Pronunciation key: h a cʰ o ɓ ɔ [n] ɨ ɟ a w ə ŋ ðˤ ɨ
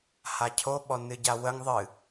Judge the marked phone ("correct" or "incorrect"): correct